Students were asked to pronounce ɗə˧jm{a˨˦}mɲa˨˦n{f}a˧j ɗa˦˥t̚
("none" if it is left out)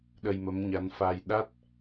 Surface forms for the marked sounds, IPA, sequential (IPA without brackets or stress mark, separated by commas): ə˨˦, f